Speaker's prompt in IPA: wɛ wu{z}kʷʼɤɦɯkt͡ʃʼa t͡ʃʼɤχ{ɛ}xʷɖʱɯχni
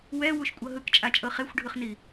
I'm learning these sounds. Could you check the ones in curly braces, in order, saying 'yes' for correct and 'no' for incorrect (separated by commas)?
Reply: no, no